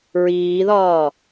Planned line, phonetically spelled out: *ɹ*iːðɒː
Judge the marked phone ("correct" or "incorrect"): correct